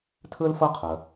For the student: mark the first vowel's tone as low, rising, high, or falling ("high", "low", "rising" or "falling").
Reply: high